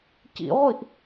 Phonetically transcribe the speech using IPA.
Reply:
c ḭ ʁʷ i ʔ

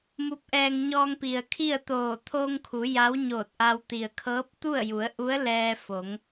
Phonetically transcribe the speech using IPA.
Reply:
m u˧˥ p̚ ʔ ɛː˧ ŋ ɲ ɔː˧ ŋ p i˩ ə̯ kʰ i˥˨ ə̯ t̪ oː˧˩ t̪ʰ o˧ ŋ kʰ u˩˧ j a˧˥ w ɲ oː˧˩ t̚ ʔ a˧ w t̪ i˩ ə̯ kʰ ɤː˧˥ p̚ t̪ u˥˨ ə̯ j u˩˧ ə̯ ʔ u˧˥ ə̯ l ɛː˧ f o˩˧ ŋ

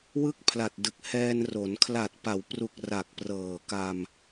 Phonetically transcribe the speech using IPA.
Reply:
w ɯ˥˩ k̚ pʰ l a˨˩ t̚ d ɯ˨˩ k̚ h ɛː˧ n r o˩˦ n kʰ l a˨˩ t̚ p a˩˦ w p r u˨˩ k̚ r a˨˩ k̚ p r ɤː˨˩ k a˧ m

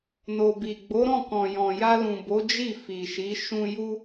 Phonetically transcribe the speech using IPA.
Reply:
n o˨ b i˨ ɡ͡b o˨˦ ɾ ɔ̃˦˨ k ɔ̃˨ j ɔ̃˨ j a˧ l ũ˨ b o˨˦ d͡ʒ i˦˨ f i˨ ʃ i˨˦ ʃ ũ˧ j u˦

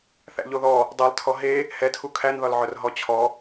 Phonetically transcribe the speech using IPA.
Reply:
θ æ̰ ʎ o ð ɔ | dˤ ɛ lˠ tʰ ɔ ɦ e | h ɛ tʰ u kʰ æ n ð ɒ l ʕ œ r ɦ ɔ t͡ɕʰ ɔ

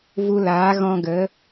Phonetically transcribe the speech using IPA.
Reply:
v u˧ l aː˨˦ ɣ ɔ̃˧ ɡ ə˨˦

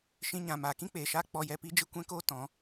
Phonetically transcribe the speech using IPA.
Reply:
ʃ ĩ˧ ɲ ã˨ m aː˨ k ĩ˦ k͡p eː˨ ʃ aː˦ k͡p ɔ˧ j ɛ˧ p i˦ d͡ʒ ɨ˦ kʷ ɛ̃˦ k oː˦ t ɔ̃˨˦

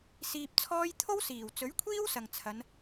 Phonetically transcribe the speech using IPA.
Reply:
s iː˧ p̚ t͡sʰ ɔː˥ j t̪ʰ o˥ w s iː˨˩ w t͡s ɵ˨˥ ɥ kʷʰ iː˥ w s ɐ˨ ŋ t͡sʰ ɐ˨˧ n

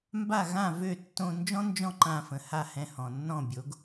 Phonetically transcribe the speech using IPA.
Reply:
m b a˥˩ ɣ ã˥˩ v ø˥˩ tː õ˧ n d͡ʒ ɔ̃˥ n d͡ʒ ɔ̃˥˩ ǃ ã˧ f ə̃˩ h a˥˩ h ɛ̃˧ h ɔ̃˩ nː ɔ̃˥˩ bʲ o˩˥ ɡ

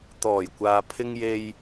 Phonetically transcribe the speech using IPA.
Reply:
t̪ ɔː˨˩ j kʷ aː˨ pʰ ɪ˧ ŋ j e˧ j

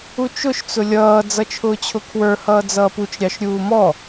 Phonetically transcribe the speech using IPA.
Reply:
u t͡ʃ ʊ ʃ t͡s ʊ lʲ ʌː d͡z ʌ t͡ʃʰ ʊː t͡ɕʰ ʊ kʰ w ə˞ h ʌː d͡z ʌː p u t͡ʃ ɾʲ ɑ ʃ ɾʲ uː m ɔ

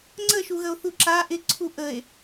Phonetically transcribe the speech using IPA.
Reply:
ŋ͡ǀ ə ʃ u ɣ ə o̯ θ u ǁ a ʔ ɪ ǀʰ u ʔ ə e̯

